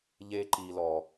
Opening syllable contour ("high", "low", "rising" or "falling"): high